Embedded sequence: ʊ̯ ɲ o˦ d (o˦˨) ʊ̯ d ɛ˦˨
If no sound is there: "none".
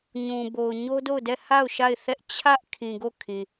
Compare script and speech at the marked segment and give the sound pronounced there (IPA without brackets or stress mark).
o˦˨